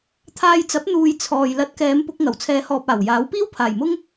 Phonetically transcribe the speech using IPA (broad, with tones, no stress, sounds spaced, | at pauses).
t̪ʰ aː˧ j t͡s ɐ˨˥ p̚ n̪ uː˨ j t͡sʰ ɔː˨ j l ɐ˨ t̚ k ɛː˨˧ m p ʊ˧ k̚ ŋ ɐ˨˩ w t͡sʰ ɛː˨˧ h ɔː˨ p̚ aː˨˩ w j aː˨˥ w p iː˥ w pʰ aː˨˩ j m ʊ˥ ŋ